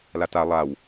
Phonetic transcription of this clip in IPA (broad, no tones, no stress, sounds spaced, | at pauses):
l a t a lˠ a w